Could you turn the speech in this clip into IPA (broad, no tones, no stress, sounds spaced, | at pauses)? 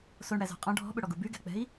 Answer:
s o ɳ ɽ æ z ɔ̤ qʼ ɔ̃ ɖʱ ɔ̤ ɓ ɵ ɽ ɔ ɡ u b y ɡ ɛ̤ k͡p ɛ̤ i̯